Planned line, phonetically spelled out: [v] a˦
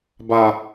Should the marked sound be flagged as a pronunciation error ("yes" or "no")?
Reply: yes